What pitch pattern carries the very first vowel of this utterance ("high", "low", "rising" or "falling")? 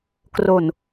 low